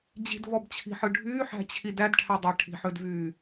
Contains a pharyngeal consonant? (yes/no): yes